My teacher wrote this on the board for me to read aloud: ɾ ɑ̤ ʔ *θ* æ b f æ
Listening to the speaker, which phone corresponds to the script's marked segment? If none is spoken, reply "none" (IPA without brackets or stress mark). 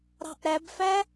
ɾ